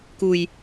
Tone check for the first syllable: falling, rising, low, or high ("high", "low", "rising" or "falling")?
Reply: low